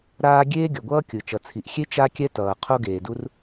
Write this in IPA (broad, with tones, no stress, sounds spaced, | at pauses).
ɾ aː˥ ɡʲ eː˥ ɡʲ ʌ˩ ɡʷ ʌː˥ kʲ ɯ˩ t͡ʃ ʌ˩ t͡sʰ i˩ ʔ xʲ e˥ t͡ʃ a˥ kʲ ɛ˥ t ʌː˩ qʰ o˥ ɡ eː˩ d u˥ r